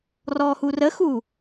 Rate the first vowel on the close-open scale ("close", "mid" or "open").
mid